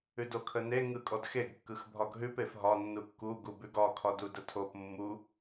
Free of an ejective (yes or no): no